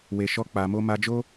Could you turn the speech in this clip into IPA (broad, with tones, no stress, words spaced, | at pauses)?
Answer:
we˨ʃɔ˧ k͡pa˧mo˦ ma˧d͡ʒo˦